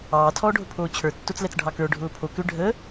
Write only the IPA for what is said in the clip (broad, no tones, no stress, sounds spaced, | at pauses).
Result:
ɑː tʰ ɔː ɖʱ ʊ pʰ oː t͡ɕʰ ə˞ tː o t͡s l ɛ t͡s ɖʱ ɑ k ə˞ ɖʱ ʊː pʰ o k ʏ ɖʱ ə